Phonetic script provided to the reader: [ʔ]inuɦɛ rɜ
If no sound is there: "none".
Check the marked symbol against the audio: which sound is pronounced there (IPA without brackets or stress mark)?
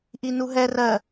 ʔ